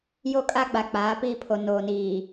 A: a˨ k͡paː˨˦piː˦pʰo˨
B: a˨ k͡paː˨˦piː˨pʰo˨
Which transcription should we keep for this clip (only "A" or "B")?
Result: A